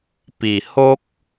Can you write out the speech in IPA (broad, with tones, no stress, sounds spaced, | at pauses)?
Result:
p i˨˩ h o˦ k̚